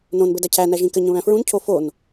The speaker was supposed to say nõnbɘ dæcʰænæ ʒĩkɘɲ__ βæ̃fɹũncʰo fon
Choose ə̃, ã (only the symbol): ə̃